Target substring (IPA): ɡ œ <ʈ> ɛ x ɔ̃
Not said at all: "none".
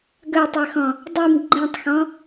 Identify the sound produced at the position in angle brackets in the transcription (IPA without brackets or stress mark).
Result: tˤ